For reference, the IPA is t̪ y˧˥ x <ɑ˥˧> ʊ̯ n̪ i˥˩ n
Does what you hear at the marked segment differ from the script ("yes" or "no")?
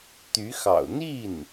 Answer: yes